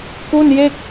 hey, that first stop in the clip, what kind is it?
plain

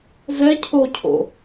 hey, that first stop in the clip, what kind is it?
aspirated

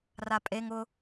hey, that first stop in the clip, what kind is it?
ejective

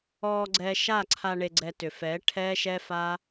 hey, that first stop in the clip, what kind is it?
click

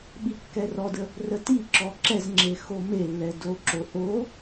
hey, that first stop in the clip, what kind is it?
implosive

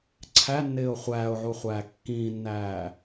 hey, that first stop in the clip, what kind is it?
click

